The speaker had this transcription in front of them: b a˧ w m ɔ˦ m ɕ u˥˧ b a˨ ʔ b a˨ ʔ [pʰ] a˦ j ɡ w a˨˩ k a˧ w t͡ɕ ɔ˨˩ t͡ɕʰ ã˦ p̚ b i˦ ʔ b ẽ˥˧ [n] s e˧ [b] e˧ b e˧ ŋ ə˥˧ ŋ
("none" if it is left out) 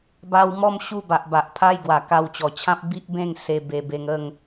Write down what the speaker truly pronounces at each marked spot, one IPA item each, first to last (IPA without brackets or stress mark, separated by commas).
pʰ, ŋ, b